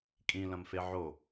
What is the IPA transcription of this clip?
kʼ ĩ l ɐ̃ m f e ʕ o

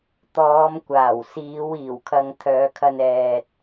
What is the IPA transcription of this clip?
t̪ ɔː˨˧ m kʷ aː˨˩ w s iː˨˧ w iː˨˩ w kʰ ɐ˨ ŋ t̪ʰ œː˨˧ kʰ ɐ˧ n ɛː˨ t̚

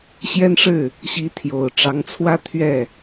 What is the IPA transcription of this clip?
ɕ j ɛ˦ n ʂ ɻ̩˥˨ | ɕ i˨˦ t̪ʰ j o˨˩ ʊ̯ ʈ͡ʂ ɑ˨˦ ŋ t͡sʰ w ä˦ t̪ʰ ɥ ɛ˥˨

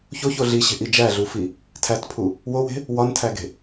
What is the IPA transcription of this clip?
ç o ç o ɮ i ɕ e̤ ʔ i d͡ʒ æ ɮ u f i | tʰ æ t pʰ u | w o w e̤ | w ɒ n tʰ æ ɡ e̤

